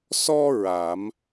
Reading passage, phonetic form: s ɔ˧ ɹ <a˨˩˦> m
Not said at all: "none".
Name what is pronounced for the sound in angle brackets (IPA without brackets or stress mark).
a˨˩˦